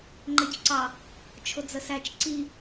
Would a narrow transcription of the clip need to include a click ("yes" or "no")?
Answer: yes